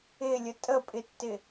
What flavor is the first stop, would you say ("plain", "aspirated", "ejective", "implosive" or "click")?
ejective